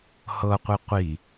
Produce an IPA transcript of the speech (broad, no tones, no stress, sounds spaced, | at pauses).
h ɤ qʷ i qʷ i